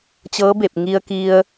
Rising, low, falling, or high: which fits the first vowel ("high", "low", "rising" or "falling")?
rising